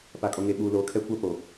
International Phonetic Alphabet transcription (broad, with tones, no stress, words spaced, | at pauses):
pa˨kʼo˨ŋe˨ɓuː˨ loː˨kʰɛ˦kʷa˦ po˨